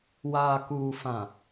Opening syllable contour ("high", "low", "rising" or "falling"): low